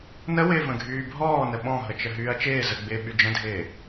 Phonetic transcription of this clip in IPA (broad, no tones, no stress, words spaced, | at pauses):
nəwɪː və̃ɡʱyːbʱɔː nəɓɔ̃ɦət͡ʃə ɦyːɐ̯t͡ʃɪː zəɡ͡bɪː ɓyd͡ʒə̃dʱɪː